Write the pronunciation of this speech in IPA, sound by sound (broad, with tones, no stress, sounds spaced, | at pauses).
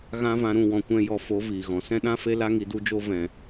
ɣ ã˦ v ã˧ ɾ ũ˦˨ w ɔ̃˨ kʷ ɛ̃˧ j ɔ˧ f o˨˦ v iː˨ ɣ ɔ̃˨ s ɛ̃˦ ɗ ã˦ f e˦ l a˦ ŋ i˧ d u˦ d͡ʒ o˦ v ɛ̃˨